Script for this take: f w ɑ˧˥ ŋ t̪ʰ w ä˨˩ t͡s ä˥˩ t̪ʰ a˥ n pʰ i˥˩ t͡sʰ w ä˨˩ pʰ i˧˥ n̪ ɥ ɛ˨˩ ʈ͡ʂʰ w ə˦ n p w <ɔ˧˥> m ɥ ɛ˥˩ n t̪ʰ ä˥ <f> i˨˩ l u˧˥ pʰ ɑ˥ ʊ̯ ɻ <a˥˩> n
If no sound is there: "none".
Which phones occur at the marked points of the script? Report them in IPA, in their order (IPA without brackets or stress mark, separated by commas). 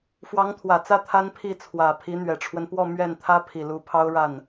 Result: ɔ˥˧, pʰ, a˥˩